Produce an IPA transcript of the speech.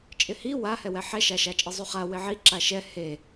t͡ʃʼ ɪ h i w a h ɛ w ɛ ħ ɛ ʃ a ʃ a t͡ʃʼ i zˤ u χ a w ɪ ʕ i ǁ a ʃ ɛ h e

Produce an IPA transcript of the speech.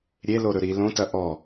ɾʲ e l o ɾ ɵ ɾ i l õ t ɐ ʔ ɔ

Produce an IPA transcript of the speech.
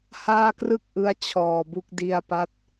h aː˥˩ k r ɯ˥˩ k̚ ʔ ɯ˦˥ a̯ t͡ɕʰ ɔː˨˩ b u˦˥ k̚ d i˧ a̯ p a˦˥ t̚

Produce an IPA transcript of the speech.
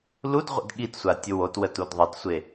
l u d ʁʷ ə̰ d ɠ i t sʷ a tʲ ʊ w o t w ə t u d ðˤ ə t sʷ e

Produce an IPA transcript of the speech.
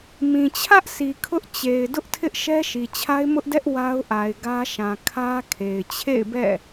m ĩ˨ t͡ɕʰ ä˦ ʔ s i˨ kʰ ʊ˦ ʔ t͡ɕ e˨ ɪ̯ d ʊ˦ ʔ tʰ ɪ˦ ʔ ʃ ɛ˦ ʃ i˨ t͡ɕʰ a˦ ɪ̯ m ʊ˦ ʔ d ɛ˦ ʔ w a˦ ʊ̯ ʔ a˨ ɪ̯ ɡ ä˦ ʃ ã˨ kʰ ä˦ kʰ e˨ ɪ̯ t͡ɕʰ ḛ˦˨ ɪ̯ b ɛ̰˦˨

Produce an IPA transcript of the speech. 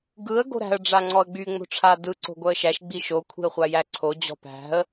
ɡ ɯ ə̯ ɡ o̤ ɾ æ̤ ə̯ ɖ͡ʐ a ŋ͡ǀ ɔ ə̯ ɡ͡b y ŋ͡m o̤ ʈ͡ʂʰ a d ɯ ǀ o̤ ɡʷ œ ə̯ ʃ æ ʃ ɡ͡b i ʃ o kʷʰ i̤ ə̯ χʷ a j æ ǀʰ o d͡ʑ ɔ̤ p æ̤ ə̯

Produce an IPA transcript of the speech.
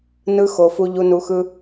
n ɯ˧ x o˨ f u˧ ʎ u˧ n u˧ x ɯ˦

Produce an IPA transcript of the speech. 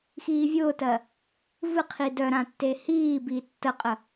x iː vʲ ʊː t ɜ | v ɨ qʰ i d œ ɾ ã tː e h iː b iː tː ə qʼ ə

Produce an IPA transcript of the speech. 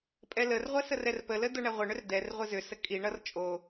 pʼ ɛ l ə r ʁʷ ɛ s ə r ɛ r p ə l ə d o ɳ ɛ ʁʷ ɪ ɳ ʏ r d ɛ r ʁʷ ɪ z ʏ s ə kʼ i ɳ ʌ r t͡ʃʼ o

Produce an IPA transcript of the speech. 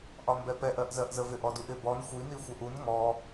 ʔ ɒ m b ɛ p ɛ ʔ ɜ ʔ z ɜ ʔ z ə v ɪ ʔ ɔ d u ʔ ɪ b ɔ n xʷ i n i xʷ ɛ ʔ u n ŋ ɔ

